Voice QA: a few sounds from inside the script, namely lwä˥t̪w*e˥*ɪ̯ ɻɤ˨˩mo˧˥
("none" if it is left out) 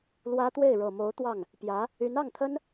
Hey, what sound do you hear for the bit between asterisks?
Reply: e˥˩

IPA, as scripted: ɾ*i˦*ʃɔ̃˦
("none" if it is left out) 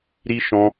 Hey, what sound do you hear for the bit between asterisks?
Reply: i˦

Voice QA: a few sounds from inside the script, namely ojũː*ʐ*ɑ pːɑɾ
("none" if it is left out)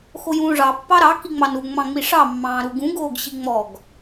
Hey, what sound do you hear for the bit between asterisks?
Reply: ʐ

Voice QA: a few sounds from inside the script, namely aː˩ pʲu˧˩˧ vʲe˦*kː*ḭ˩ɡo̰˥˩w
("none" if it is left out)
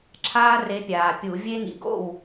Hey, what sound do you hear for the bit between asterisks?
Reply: ŋ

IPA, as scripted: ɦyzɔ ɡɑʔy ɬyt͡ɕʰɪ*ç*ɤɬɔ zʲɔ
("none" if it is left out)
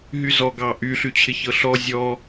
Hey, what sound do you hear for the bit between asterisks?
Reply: ç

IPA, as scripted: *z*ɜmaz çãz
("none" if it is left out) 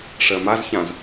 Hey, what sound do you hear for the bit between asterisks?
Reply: ʂ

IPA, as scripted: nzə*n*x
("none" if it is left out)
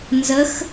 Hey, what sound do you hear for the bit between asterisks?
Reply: none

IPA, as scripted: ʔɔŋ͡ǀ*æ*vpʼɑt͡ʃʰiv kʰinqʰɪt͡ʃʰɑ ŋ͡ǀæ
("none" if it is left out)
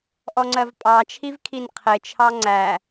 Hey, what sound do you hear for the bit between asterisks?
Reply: ɜ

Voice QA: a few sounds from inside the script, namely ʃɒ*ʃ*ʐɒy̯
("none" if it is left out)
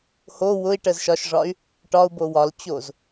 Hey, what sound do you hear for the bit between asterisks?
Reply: ʃ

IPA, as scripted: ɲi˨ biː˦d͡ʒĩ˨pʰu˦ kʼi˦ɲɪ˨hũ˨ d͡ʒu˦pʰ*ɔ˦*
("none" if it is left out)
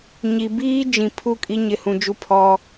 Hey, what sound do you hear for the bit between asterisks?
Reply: ɔ˦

